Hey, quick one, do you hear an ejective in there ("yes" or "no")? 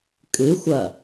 yes